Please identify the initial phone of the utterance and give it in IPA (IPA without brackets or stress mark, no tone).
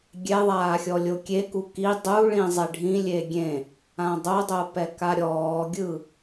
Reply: ɡʲ